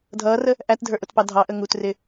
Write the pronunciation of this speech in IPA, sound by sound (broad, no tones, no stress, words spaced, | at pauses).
dʱʌːrə | ʔætdʱə˞ʔʊtpɑ dʱɑʔə ŋutrɪ